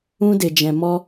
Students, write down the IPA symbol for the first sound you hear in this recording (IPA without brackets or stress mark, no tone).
ũ